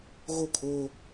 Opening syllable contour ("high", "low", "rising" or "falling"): falling